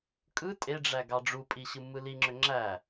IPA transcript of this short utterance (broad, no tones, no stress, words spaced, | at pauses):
kʼɯ tʼeɖ͡ʐæ ɡɑɖ͡ʐupʼi ɕɯmːɯliŋ͡ǁø ŋ͡ǁæ